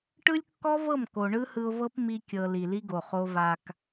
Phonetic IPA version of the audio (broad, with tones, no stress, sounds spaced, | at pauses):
ʈ ɯ˦ lʲ kː ɔ˦ v ɤ˦˨ m k o˨ ɳ ɯ˦ h ɯ˧ ʊ̯ v ɤ˦ p m i˧ kʲ ɤ˨ l i˨ l i˦ ɡ o˨ χ o˧ v a˨ k